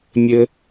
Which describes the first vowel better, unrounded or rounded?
unrounded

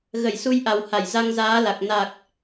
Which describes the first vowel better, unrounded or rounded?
unrounded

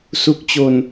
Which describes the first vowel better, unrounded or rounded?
rounded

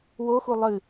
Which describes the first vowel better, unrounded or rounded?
rounded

